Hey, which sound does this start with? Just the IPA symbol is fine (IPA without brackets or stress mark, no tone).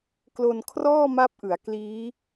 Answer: k